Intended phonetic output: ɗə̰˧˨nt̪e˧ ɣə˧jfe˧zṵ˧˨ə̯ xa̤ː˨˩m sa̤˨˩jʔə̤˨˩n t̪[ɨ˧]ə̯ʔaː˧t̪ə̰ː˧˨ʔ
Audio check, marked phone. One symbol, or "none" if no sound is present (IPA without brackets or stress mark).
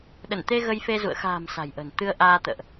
ɨ˧